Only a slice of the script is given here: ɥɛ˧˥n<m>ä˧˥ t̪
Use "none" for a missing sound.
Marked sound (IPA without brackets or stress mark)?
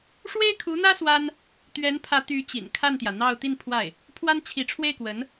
pʰ